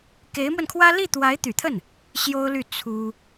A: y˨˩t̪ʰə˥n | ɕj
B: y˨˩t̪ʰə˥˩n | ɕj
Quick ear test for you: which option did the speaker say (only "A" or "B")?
B